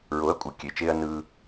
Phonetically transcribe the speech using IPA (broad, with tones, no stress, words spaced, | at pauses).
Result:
ɹo˨˦ɐ̯kʷʼɯ˨ kʲe˨˦t͡ʃeː˦ɐ̯ nɯː˧